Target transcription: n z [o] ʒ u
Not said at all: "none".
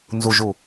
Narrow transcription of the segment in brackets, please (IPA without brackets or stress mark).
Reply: u